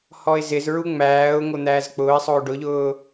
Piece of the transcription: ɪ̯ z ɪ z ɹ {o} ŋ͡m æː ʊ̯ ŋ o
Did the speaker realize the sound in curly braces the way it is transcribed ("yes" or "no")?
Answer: no